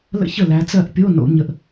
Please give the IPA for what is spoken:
l ə̰˥˩ ç ə˥˩ l æ˨˦ t͡s ɜ˥˩ ʔ pʲ o˧˥˧ n o̰˨˩˦ ɲ ə˧˩ ʔ

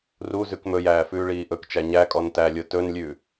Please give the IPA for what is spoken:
r u z ʉ k m ɵ j æː f ʉː ɭ iː ʔ ɵ k t͡ʃ æ ɲ æ kʼ ɔ n t æ lʲ o t ɵ n lʲ ʉ

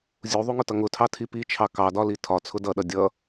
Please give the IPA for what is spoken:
zʲ u ðˤ u ŋ ʊ t ʌ ŋ ʊ tʰ ɑ tʰ i p i t͡ʃʰ ɑ k ɑ d ɒ l i tʰ ɒ t͡sʰ ʊ d ʌ ɗ ʌ dʲ ʌ

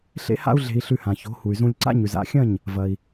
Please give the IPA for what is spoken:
ɬ ḛ˥ h a̰˥ u̯ ɮ e̤˧ i̯ ɬ ʉ˧ h ã˩ ç o̤˩˥ h u˩ y̯ z ũ˧ lʲ ǀ a̰˥ ɲ ʉ˩ z a̰˥˩ xʲ ɐ̃˥˩ ɲ | v ɐ˩ i̯

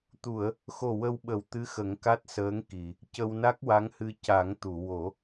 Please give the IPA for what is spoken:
t̪ u˨˩˨ ə̯ | x o˨˩ w ə˧ w ɓ ə˨˩˦ w t̪ ɨ˧˥ x ə˨˩˦ ŋ k a˦˥ t̚ s əː˧˥ ŋ k i˨˩˨ | c ə˧ w n a˦˥ k̚ w a˧˥ ŋ h ɨ˧ c a˨˩˦ ŋ t̪ u˨˩˨ w o˨˩˦

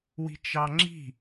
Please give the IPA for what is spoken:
w i̤ t͡ʃ ɑ ŋ͡ǁ i̤

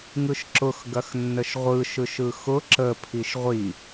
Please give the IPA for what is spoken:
ŋ ɯ ʃ ǁ ʊ x ɡ ɐ x nː ə ʃ ʁʷ ɯ ʃ ɯ ʃ ɯ x ʊ ǁ ə pʰ i ʃ ʁʷ i

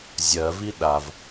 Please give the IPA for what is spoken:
zʲ ɜ v i ɗ a v

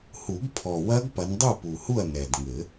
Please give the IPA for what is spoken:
h u˨˩˦ ɡ pʰ ɔ˨˩ w ɐ˦˥ ɡ p ɐ˨˦ n dˤ u˥˨ p u˨˩ h u˥˨ ɐ̯ n ɛ˨˩ d ŋ ɘ˨˩˦

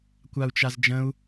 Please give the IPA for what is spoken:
kʷ a u̯ t͡ʃ a z d͡ʒ ə̃ u̯

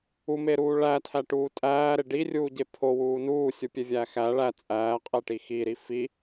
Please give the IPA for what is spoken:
u m e ɾ uː ɭ æ tʰ æ ʈ uː tʼ æː ɾ e ɖ i rʲ uː ɟ e pʰ o w uː n uː sʲ u pʲ e vʲ æː x æ ɭ æ t͡sʼ æː qʼ e ʈ i x i ɾ i f i

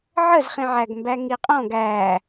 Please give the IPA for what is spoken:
ʕ ə z χ ĩ ʕ æ ɡ m b æ ŋ i qʼ ɔ̃ ɡ æ

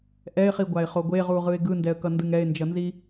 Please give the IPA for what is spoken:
ʔ ɛ ɪ̯ χ i ɡʷ a ɪ̯ χ o ɡʷ e ʁ u ʁ ɯ ɪ̯ ɡ ɯ n d ɛ ə̯ k ʌ n d ɯ ŋ ɛ ɪ̯ n d͡ʒ ʌ n z i

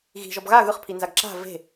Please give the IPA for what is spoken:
ɣ i̤ ʒ ɔ b ɣ a ɣ ɯ χ pʰ i n z a ɡ ǁ a̤ v e̤

